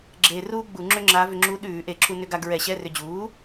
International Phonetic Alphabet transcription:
ɡ͡ǁeː˧ ruː˥ɡ͡bu˧˩˧ ŋ͡ǁʏ˥ŋ͡ǁa˧˥ vʏ˧ŋ͡ǁuː˧˥ ɗʉː˧˩˧ʔe˧˩˧ǁu˧ nʏ˧ɡa˧ ɡɹɛ˧˩˧ɕɛ˧˥˧rʏ˧ d͡ʑuː˩˥

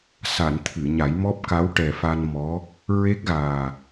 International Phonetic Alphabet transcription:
sa˨˩˨n t̪ʰɨ˨˩˨ɲa˨˩˦j mɔ˦˥p̚ka˧˥wʈɛ˨˩fa˧n mɔ˧˥ | ɹe˦˥k̚ɣaː˨˩

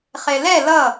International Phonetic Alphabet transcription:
χelɛ lʌ

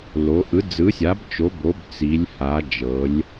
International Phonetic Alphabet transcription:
lo˩˧ʔɯ˩˥d͡zɯ˩˥sʲa˩˥b t͡ʃo˩˥ bo˩˥bt͡si˩˧lʲ ha˩˧d͡ʒɤ˩˧lʲ

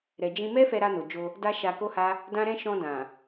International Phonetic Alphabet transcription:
ɾɛ˨d͡ʒĩ˧mɛ˦ fɛ˧ɾa˧no˨d͡ʒo˧ | da˧ ʃa˧ko˦ha˦ | dã˦ɾɛ̃˦ ʃɔ̃˧dã˨

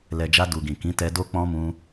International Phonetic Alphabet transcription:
lɛ˨d͡ʒa˧ du˨ɡĩ˨kĩ˨˦ tɛ˧do˦k͡pɔ̃˦ mũ˦

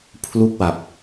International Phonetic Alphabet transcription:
pʰlu˥˩k̚wa˨˩p̚

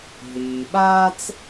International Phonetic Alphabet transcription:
ɦiː˩ɓaː˥t͡s

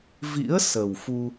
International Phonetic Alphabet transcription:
vḭ˧˥ə̯ sə˨˩wfu˧

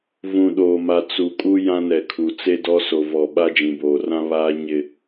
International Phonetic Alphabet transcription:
vũ˨ɗoː˨ma˨ t͡su˨kʼu˦ jã˦nɛ˨kʰu˨ t͡se˦dɔ˦ so˨vɔ˨ ɓa˦d͡ʒĩ˨boː˨rã˦ βaː˦ ɲɪ˨

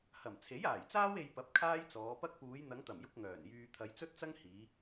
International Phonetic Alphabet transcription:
hɐ˨˩mt͡sʰe˨˥jaː˨˩jt͡saː˥w e˧jpɐ˨˥p̚ kʰaː˥jt͡sɔː˨˧pɐ˥k̚ puː˨˧jn̪ɐ˨˧ŋt̪ɐ˨˩mjʊ˧k̚ ŋœː˨˩njyː˧ t̪ʰɐ˨˧jt͡sɵ˥t̚t͡sɐ˥ŋ hiː˨˧

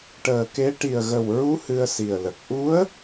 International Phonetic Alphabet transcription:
ʈəː˨˩ke˧˥ ʈi˨˩ə̯ɣə˨˩wɹu˧˥ hɨ˧ə̯si˨˩ə̯lə˨˩k̚ ʔu˧˥ə̯

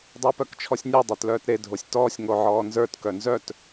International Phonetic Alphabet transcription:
dˤʊːpœkt͡ʃʰɔsʲnʲe dˤə˞tlœːtɾe dʱosʲtɔːsʲ ŋoʕɔːnzə˞t kœnzœt

